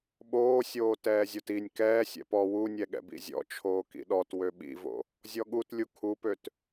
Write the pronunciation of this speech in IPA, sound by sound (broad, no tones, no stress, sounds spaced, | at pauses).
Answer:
ɓ oː sʲ oː t ɛː zʲ o t i nʲ k ɛː sʲ ɛ̰ p ɔ w u nʲ ɛ ɠ ɛ̰ b ḭ zʲ ɔ̰ t͡ʃʰ oː k ḭ ɗ ɔ t w ø ɓ ḭ v o̰ | zʲ ɔ ɠ u t lʲ u kʰ u p ø t